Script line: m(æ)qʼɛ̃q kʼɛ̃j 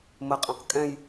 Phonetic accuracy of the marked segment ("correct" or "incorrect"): incorrect